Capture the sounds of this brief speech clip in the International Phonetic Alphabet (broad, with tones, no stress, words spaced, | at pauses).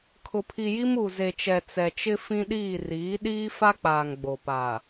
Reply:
kʰʊ˨pʰi˨ji˦m u˨ze˨t͡ʃɛ˨ t͡sɛ˨t͡ʃɪ˦ fĩ˦ɗiː˦˨ riː˨˦ɗiː˦ fa˦k͡paː˨ŋ ɡ͡bo˨pa˨